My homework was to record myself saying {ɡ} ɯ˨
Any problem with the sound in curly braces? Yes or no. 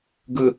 no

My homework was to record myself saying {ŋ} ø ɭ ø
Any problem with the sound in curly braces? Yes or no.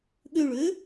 yes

